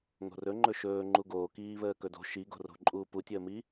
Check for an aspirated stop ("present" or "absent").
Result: absent